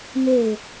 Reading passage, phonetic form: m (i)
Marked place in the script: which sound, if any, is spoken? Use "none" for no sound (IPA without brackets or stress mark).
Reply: e